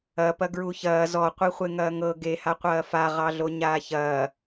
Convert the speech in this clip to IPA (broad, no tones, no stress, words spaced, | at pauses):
ɐpɐ ɡɹuçɐː zɔqʷiχʷe ŋɐːŋɤ ɡeha qʷɐːfa ʁɑɮoɲaːçɐː